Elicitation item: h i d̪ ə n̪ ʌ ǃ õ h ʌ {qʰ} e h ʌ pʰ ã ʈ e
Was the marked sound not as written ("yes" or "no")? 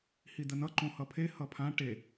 yes